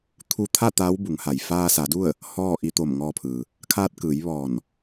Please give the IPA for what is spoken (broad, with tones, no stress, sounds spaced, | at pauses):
t̪ʰ u˧ t̪ʰ a˥˨ t̪ aː˧˥ w b u˩˧ ŋ h a˩ j f aː˧ s a˩˧ d u˥˨ ə̯ | h ɔː˥˨ ʔ i˧ t̪ o˧˩ m ŋ ɔː˧ pʰ ɯː˩ | kʰ aː˧ t̚ k ɯː˩˧ j ʋ ɔː˧˩ n